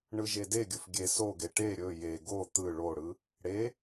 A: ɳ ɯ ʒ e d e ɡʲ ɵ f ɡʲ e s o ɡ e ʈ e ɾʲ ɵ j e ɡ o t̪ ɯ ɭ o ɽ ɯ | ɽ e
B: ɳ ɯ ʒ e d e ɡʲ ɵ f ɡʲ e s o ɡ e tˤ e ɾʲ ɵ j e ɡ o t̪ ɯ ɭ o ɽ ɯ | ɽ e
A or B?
A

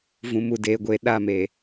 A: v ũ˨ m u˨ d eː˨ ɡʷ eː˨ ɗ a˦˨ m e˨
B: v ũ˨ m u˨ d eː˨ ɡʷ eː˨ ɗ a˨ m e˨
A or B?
A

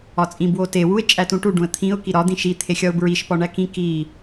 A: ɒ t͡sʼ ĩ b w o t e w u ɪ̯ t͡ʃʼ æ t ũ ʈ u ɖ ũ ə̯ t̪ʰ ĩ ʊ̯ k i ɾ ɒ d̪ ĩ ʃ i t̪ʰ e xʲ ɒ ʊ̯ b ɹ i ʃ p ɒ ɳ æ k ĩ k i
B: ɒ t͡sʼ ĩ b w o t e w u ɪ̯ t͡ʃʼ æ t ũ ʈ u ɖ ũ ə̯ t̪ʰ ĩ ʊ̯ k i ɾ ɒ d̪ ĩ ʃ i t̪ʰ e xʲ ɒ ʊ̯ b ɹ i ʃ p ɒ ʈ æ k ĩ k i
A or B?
A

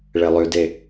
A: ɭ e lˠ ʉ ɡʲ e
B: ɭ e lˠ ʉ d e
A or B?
B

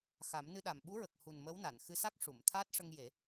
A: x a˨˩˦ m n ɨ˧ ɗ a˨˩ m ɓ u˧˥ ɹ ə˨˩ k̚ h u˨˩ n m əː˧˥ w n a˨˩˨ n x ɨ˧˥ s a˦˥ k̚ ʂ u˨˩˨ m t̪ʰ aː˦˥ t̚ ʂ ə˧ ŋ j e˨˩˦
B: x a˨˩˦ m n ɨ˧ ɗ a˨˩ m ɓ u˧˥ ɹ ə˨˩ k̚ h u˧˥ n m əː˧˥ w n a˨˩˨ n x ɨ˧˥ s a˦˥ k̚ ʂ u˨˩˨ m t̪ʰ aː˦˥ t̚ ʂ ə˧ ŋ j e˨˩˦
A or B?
A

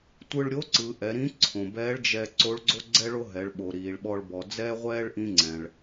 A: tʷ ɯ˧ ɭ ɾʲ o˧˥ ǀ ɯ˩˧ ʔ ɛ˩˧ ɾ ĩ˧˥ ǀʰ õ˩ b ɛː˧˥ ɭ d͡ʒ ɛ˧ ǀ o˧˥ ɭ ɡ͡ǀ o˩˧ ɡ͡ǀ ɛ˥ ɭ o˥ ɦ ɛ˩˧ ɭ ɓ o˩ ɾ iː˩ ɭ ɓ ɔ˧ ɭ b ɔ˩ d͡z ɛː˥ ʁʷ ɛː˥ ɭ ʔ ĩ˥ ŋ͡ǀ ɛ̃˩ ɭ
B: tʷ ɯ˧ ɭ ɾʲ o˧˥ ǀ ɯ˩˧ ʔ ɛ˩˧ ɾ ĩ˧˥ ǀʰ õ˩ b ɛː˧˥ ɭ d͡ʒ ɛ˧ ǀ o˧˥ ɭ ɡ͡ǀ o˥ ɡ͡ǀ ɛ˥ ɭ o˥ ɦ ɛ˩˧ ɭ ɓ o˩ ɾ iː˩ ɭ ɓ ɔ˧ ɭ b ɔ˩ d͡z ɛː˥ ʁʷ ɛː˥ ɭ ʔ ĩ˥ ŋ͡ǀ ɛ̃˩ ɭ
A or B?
B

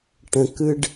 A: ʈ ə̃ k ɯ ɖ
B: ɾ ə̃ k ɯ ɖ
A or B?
A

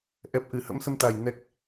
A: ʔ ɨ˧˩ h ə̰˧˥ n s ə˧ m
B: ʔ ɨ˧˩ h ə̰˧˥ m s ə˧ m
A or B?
B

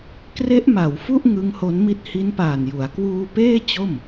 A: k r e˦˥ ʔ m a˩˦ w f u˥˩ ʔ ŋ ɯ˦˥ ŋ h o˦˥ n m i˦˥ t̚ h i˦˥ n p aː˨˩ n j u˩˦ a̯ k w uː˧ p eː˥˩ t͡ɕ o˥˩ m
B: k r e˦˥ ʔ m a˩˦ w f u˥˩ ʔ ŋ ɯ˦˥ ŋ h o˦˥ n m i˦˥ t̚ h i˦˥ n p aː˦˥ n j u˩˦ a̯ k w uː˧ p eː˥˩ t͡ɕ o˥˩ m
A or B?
A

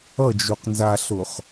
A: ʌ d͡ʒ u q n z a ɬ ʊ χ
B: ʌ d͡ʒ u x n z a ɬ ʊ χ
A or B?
A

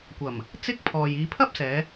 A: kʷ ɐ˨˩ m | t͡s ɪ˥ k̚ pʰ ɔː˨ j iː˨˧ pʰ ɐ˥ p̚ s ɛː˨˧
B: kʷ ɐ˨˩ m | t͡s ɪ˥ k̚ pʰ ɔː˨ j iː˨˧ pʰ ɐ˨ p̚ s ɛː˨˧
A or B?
A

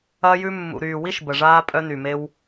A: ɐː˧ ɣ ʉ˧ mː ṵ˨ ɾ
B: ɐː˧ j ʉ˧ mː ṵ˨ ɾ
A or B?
B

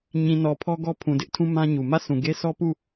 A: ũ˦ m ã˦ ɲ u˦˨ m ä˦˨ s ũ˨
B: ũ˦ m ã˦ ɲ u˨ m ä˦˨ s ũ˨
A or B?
B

